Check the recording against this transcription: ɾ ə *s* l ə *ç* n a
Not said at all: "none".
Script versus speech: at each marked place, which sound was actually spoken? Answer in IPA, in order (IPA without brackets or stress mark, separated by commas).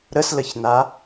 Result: s, ç